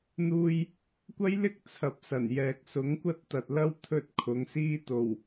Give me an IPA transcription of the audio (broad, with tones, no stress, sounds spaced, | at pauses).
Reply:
n̪ uː˧ j | kʷ ɐ˥ j l ɪ˥ k̚ t͡sʰ ɐ˨ p̚ s ɐ˨˩ n j ɛː˨ k̚ s ʊ˨˥ ŋ kʷ ɐ˥ t̚ t̪ ɐ˨ t̚ l ɐ˥ w t̪ʰ ɵ˧ t̚ kʰ ʊ˨˧ ŋ s iː˥ t̪ o˨˩ w